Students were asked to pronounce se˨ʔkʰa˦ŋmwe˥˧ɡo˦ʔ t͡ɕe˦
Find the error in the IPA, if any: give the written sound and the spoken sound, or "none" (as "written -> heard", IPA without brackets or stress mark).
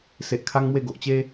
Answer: o˦ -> o˨